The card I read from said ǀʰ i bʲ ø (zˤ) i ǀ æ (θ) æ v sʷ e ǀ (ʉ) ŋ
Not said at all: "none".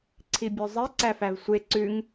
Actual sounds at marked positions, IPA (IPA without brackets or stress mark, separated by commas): zˤ, f, ʉ